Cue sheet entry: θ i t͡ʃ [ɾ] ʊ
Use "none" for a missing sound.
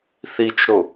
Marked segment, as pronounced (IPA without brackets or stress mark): ɾ